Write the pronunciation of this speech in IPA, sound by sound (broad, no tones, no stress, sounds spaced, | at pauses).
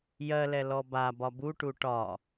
j ɜ l ɛ l ɔ b a b ɒ b u ʈ u ʈ ɒ